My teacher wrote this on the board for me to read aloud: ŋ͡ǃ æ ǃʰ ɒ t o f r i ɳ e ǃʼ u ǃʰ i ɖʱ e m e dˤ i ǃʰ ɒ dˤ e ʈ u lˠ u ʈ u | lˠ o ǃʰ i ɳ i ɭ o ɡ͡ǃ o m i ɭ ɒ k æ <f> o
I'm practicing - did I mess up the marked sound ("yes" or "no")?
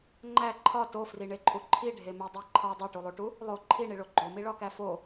no